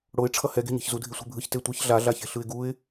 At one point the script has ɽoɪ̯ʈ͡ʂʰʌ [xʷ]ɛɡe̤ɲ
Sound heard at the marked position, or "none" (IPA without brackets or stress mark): h